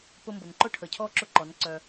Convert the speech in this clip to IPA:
p ʊ˧ m b ʊ˨ n ǃ ʊ˦ ʈʰ ə˨ cʰ ɔ˦˨ ǁ ʊ˦ ǃ ɔ˨˦ n ǀ œ˧

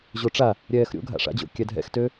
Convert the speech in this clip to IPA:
ʑ o ʈ͡ʂ a | ɾʲ ɛː x ɾʲ o̰ ɡʱ a̰ ʂ a̰ d͡ʑ o̰ kʲ ɛ dʱ ɛ̰ x t ø

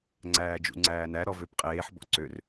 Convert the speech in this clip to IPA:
ŋ͡ǀ æː d͡ʒ ṵ ŋ͡ǀ æː n æ ɾ ɔ v ø p qʼ eː ħ b ɔ̰ ǀ ø r

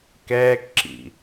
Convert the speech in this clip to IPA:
k ɛː k ǁ ḭ

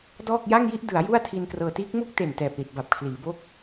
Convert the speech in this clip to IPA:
d ɔː˥˩ k̚ j a˥˩ ŋ j i˥˩ ʔ d ɯ˩˦ a̯ j u˥˩ a̯ tʰ i˧ n k r ɤː˧ t iː˦˥ k̚ m u˥˩ k̚ t e˨˩ n t ɛː˨˩ p̚ l i˨˩ t̚ b a˨˩ p̚ kʰ l iː˩˦ b o˥˩ k̚

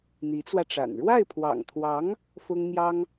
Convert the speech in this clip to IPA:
n̪ i˧˥ t͡s w ä˧ ʈ͡ʂ a̰˨˩ n ɻ w a˥˩ ɪ̯ pʰ w ɑ̰˨˩ ŋ t̪ʰ w ɑ˧˥ ŋ | f ʊ˥ ŋ n̪ j ɑ˥ ŋ

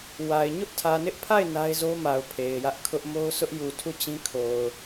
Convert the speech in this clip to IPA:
w a˨ ɪ̯ ɲ ʊ˦ ʔ tʰ ä˨ n ɪ˦ ʔ pʰ a˦˨ ɪ̯ n a˦ ɪ̯ z o˦ m a˨ ʊ̯ pʰ e˨ ɪ̯ j ä˦ ʔ kʰ ʊ˦ ʔ m o˦ ʊ̯ sʰ ʊ˦ ʔ j u˨ tʰ u˦˨ t͡ɕ ĩ˦ kʰ o˨ ʊ̯

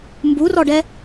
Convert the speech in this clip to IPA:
m b u r ɔ ɖ ɛ

